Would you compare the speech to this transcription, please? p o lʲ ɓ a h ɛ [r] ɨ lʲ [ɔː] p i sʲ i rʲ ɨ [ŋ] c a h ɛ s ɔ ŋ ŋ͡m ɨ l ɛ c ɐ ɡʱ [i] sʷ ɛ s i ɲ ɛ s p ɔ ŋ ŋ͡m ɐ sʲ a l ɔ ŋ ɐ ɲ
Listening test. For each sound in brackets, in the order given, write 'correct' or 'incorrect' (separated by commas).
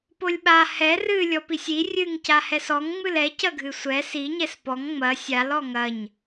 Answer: correct, incorrect, correct, incorrect